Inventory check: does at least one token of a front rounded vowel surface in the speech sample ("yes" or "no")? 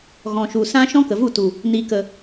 no